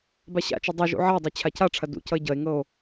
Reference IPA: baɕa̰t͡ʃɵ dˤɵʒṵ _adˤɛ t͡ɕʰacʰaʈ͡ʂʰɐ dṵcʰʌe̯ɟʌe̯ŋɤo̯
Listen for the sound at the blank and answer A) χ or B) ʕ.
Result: B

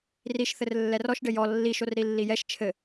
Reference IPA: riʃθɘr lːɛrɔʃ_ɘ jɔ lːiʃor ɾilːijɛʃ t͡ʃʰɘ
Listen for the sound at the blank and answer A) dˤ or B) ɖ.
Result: B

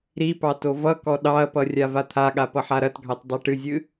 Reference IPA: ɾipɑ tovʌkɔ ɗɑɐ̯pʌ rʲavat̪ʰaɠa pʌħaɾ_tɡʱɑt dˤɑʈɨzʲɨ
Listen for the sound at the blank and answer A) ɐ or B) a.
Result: A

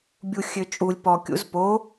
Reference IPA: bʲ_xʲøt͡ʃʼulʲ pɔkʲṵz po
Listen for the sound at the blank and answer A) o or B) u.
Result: B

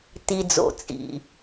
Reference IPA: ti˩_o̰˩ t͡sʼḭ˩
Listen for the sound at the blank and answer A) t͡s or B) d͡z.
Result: B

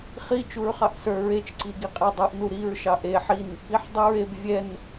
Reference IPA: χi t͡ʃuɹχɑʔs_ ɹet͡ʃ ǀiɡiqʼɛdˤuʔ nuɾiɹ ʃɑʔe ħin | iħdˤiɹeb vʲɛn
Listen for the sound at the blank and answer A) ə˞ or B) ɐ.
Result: A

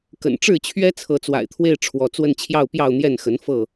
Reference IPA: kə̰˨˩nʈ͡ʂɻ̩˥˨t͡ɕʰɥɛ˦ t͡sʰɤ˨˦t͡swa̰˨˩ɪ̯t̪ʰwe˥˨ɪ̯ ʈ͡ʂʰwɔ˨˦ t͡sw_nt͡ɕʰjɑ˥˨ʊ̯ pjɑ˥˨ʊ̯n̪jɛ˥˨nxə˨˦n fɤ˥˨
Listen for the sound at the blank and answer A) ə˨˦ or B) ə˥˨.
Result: B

